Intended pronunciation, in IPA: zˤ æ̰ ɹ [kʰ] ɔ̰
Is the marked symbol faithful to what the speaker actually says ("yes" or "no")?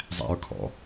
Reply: yes